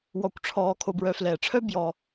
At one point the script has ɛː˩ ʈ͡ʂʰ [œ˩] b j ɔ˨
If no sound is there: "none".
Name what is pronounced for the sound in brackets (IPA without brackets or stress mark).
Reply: œ˥